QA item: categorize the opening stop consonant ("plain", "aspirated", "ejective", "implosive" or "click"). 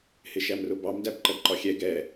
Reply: plain